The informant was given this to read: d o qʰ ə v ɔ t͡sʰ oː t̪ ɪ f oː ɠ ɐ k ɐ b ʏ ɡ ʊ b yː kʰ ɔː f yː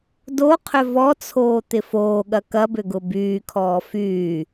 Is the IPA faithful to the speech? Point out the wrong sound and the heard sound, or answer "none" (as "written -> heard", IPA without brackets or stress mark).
ə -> ʏ